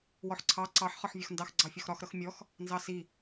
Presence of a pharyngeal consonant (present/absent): present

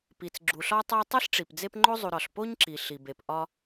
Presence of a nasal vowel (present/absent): absent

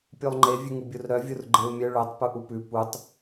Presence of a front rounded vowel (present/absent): present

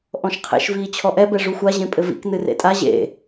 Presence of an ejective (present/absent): present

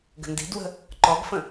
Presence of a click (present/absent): present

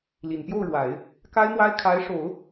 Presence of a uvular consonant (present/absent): absent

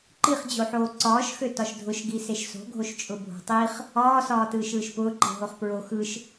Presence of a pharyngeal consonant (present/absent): present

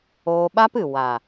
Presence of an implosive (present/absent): present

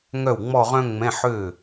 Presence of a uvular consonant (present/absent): present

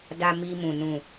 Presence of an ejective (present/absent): absent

